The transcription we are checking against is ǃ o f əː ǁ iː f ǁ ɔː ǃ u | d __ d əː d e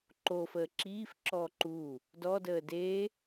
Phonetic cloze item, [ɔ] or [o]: ɔ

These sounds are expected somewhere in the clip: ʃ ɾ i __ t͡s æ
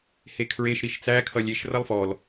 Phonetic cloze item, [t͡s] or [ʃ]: ʃ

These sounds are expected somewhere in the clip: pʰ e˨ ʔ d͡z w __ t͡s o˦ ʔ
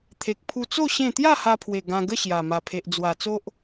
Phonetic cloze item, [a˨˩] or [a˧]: a˨˩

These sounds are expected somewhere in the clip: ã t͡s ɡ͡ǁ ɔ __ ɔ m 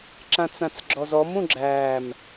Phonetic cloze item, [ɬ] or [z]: z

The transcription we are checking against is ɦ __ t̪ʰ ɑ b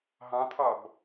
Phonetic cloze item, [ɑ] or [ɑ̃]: ɑ̃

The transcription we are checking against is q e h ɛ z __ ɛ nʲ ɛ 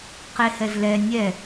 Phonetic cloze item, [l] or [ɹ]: l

